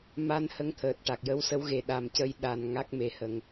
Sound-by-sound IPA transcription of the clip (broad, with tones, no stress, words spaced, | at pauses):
ma˧n hə˧˥ŋt̪ʰəː˨˩t̚ʈa˨˩k̚ jə˧˥wsə˧˥wɣe˨˩ ɗa˨˩mcə˧j ɗa˨˩n ŋa˦˥k̚me˨˩hə˨˩˨ŋ